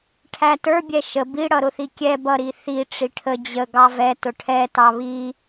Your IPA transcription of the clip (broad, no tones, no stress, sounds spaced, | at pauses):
ʈʰ æ t ə˞ bʲ ɛ ʃ ə b i ɽ ʌ ɾ ʊ θ i kʲ ɛ b ʌ ɾ i θ i ʈ͡ʂ i ʈʰ ə d͡ʑ ə ɡ ɑ v ɛ t ʊ ʈʰ ɛ t ɑ β i